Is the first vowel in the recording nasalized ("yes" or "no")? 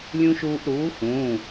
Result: yes